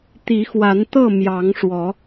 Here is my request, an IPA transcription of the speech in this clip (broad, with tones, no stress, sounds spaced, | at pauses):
t̪ i˨˦ x w a˨˦ n t̪ ɤ˥˨ m j ɑ˨˦ ŋ ʂ w ɔ˨˦